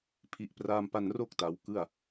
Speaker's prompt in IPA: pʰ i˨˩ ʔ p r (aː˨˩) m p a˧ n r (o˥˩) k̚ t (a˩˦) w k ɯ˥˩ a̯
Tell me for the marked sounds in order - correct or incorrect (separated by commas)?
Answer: incorrect, correct, correct